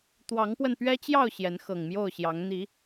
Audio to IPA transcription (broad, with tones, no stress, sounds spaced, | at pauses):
t̪ w ɑ˨˦ ŋ p w ə˧ n p ɥ ɛ˦ t͡ɕ j ɑ˥˨ ʊ̯ ɕ j ɛ˨˦ n x ɤ˨˩ ŋ m j o˥˨ ʊ̯ ɕ j ɑ˨˦ ŋ n̪ i˨˦